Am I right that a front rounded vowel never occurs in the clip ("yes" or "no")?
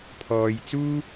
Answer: yes